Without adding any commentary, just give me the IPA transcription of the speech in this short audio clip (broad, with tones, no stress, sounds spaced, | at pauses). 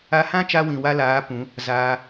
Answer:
a˧ h ã˦ t͡ʃ a˧ w ĩ˨ w a˧ l aː˨˦ p ũ˨˦ | z aː˧